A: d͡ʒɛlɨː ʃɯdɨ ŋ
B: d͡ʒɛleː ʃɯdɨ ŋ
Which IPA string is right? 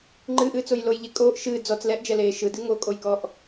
B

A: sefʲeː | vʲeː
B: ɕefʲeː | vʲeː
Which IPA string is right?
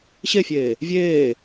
B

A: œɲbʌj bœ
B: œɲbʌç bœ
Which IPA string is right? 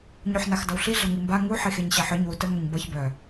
B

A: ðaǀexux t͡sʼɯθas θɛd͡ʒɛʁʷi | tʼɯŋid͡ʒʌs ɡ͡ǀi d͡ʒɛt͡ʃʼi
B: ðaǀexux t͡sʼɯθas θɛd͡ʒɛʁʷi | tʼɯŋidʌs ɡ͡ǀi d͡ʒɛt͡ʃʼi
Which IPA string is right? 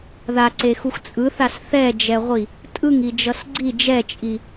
A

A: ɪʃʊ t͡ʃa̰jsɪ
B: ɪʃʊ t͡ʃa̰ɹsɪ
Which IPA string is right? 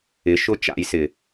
A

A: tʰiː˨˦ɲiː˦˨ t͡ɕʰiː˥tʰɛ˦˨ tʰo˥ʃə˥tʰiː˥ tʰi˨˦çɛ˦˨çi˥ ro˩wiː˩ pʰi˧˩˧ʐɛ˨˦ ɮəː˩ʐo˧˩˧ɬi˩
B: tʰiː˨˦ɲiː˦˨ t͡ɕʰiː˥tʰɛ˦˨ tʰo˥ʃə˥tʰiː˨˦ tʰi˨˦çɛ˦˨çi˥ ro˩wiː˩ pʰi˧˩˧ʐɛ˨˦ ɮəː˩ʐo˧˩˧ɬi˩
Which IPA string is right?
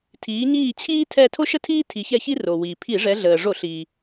A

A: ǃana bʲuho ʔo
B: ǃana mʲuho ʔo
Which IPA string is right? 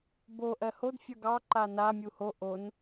B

